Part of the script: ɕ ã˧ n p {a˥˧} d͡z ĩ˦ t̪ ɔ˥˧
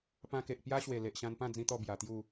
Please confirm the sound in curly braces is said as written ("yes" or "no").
no